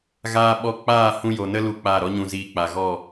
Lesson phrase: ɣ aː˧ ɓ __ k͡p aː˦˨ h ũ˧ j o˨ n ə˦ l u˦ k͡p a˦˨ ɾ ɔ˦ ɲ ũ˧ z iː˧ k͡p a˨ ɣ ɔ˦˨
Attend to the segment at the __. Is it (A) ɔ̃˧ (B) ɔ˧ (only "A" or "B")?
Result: B